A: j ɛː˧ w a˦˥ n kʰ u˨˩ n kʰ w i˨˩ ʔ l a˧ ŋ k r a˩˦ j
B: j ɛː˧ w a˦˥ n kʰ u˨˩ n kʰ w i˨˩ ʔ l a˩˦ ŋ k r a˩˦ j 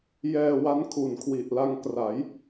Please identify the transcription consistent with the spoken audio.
A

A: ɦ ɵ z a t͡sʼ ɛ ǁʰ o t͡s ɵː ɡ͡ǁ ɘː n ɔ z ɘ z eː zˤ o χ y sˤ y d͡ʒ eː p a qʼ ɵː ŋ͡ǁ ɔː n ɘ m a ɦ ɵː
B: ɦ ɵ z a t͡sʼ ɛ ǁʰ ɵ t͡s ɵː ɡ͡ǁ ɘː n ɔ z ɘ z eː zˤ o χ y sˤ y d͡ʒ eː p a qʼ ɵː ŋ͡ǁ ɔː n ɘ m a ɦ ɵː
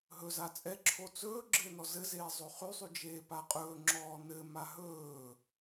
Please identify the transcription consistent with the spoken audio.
A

